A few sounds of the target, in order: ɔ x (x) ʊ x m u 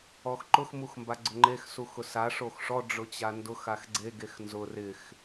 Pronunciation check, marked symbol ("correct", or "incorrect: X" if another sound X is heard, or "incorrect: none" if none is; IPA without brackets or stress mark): incorrect: ǃ